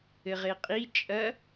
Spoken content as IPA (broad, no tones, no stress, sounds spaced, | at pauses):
ɘ ʁ e qʼ i t͡ʃʼ ɐ